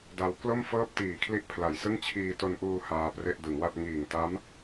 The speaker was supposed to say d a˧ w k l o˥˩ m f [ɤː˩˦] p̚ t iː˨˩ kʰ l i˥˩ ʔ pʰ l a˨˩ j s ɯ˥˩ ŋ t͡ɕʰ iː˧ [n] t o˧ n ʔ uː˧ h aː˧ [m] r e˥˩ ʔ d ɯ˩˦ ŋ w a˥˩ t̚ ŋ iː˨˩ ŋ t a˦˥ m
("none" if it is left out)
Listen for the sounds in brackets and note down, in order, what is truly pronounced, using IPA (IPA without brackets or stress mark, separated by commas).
ɤː˥˩, none, p